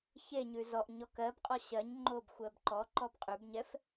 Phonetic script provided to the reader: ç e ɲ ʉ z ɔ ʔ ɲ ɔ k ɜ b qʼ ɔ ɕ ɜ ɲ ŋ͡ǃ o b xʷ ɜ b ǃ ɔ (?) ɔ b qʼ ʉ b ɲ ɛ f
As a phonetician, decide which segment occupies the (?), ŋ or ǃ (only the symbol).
ǃ